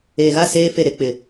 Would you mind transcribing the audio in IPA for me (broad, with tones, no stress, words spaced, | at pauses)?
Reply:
eː˨ɣa˦˨ seː˦fe˦˨ ɾe˦k͡pɪ˨